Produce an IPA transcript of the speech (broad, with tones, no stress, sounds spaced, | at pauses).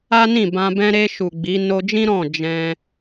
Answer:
a˦ n ĩ˦˨ b ã˧ b ɛ̃˧ ɾ e˧ ʃ u˨ ɡ͡b i˨˦ n o˧ d͡ʒ ĩ˦ ɾ ɔ̃˦˨ d͡ʒ ɛ̃˧